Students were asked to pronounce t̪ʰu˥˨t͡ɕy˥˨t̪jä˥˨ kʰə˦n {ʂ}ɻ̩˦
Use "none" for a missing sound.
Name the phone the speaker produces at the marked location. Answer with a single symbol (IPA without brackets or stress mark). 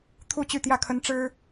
ʈ͡ʂ